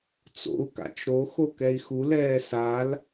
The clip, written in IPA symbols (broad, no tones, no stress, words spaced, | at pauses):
t͡so̰u̯ ka̰t͡ʃɾo xokɛi̯xu lɛːsal